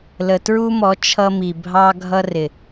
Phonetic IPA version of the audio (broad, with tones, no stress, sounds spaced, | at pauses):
l ə˨ t ɹ u˦ m ɔ˨˦ t͡ʃʰ ʌ˦ m i˨ bʱ ɑ˦ ɡʱ ʌ˦ r ɪ˨